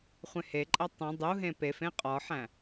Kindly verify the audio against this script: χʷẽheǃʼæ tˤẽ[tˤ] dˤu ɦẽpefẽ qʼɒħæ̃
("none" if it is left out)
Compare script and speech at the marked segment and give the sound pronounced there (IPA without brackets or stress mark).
none